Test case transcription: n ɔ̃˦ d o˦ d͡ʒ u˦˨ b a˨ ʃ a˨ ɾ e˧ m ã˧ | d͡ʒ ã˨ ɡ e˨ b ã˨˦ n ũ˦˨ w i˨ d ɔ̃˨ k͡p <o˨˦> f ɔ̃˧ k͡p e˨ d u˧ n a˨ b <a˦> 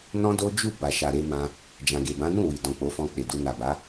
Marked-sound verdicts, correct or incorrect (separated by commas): correct, incorrect